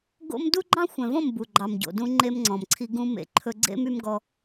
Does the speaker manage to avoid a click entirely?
no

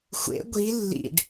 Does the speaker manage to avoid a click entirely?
yes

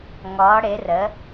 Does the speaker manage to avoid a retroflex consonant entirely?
no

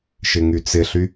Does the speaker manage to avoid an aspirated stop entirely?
yes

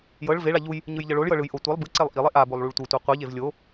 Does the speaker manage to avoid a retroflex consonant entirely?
no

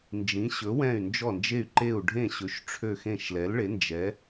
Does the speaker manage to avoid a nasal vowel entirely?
no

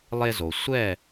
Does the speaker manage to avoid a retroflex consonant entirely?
yes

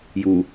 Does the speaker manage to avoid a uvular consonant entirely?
yes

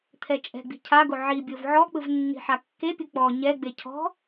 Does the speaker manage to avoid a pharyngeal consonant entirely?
no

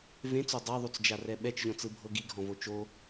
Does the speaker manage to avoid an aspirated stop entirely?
yes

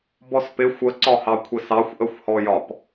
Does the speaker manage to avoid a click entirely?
no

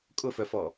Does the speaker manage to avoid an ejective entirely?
no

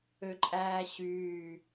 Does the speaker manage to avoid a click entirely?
no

